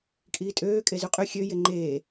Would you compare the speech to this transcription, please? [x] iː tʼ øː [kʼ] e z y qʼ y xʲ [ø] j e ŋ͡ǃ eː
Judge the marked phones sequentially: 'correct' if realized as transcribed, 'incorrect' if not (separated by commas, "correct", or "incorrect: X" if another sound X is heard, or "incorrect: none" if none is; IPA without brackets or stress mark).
incorrect: kʼ, correct, correct